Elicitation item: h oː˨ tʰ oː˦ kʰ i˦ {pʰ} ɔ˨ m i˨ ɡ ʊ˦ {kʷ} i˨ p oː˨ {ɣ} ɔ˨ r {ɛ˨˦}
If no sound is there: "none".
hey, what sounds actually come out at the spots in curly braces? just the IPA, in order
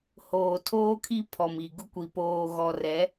pʰ, kʷ, ɣ, ɛ˨˦

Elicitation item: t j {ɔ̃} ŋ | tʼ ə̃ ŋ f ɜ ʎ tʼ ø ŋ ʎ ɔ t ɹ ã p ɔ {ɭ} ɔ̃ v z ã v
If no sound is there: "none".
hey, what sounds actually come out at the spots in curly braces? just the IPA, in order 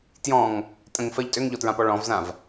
ɔ̃, ɭ

